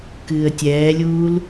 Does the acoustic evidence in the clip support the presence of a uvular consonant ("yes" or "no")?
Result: no